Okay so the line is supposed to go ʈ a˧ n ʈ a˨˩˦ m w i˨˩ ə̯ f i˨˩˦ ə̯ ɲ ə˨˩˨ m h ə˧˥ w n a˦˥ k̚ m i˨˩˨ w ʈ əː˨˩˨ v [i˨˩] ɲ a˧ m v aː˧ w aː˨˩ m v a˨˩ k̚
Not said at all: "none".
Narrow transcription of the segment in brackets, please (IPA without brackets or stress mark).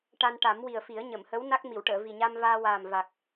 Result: i˨˩